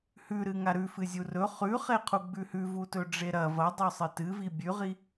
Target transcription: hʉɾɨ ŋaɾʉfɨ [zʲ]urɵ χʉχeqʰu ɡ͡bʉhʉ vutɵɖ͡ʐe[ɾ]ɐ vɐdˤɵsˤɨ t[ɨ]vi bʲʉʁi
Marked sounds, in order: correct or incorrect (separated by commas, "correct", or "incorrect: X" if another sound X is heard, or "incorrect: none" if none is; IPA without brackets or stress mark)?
correct, correct, correct